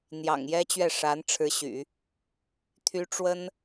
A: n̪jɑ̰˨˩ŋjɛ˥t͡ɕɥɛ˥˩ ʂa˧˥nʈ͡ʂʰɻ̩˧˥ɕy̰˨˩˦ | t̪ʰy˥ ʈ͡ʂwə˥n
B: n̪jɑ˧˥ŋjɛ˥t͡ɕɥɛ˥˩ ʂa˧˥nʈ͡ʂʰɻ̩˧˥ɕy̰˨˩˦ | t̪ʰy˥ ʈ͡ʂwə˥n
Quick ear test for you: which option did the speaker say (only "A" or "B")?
A